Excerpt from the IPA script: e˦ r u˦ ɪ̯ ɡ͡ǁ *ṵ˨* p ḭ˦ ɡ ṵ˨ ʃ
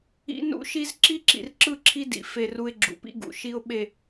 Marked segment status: correct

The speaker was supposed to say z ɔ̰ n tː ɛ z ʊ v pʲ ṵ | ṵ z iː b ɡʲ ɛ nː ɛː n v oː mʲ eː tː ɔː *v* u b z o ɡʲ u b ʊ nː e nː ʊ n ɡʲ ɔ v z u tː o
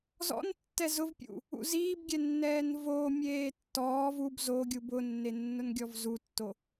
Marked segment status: correct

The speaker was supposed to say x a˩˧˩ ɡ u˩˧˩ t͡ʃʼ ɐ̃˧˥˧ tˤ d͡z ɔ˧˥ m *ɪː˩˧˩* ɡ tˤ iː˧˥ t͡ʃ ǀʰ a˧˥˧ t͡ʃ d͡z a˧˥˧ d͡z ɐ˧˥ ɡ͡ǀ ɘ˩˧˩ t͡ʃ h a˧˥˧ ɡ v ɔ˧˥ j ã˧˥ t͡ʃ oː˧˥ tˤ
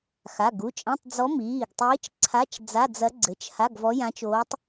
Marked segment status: incorrect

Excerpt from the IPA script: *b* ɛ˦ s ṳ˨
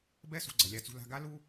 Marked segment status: correct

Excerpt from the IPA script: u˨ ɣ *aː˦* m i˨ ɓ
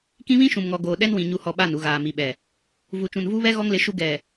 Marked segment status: incorrect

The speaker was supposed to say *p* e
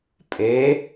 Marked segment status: incorrect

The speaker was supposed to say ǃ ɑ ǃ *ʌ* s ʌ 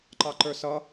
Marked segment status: incorrect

